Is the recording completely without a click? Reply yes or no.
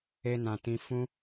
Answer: yes